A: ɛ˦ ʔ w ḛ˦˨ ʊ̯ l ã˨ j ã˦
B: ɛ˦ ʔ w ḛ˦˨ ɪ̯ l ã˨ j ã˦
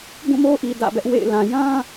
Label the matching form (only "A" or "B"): B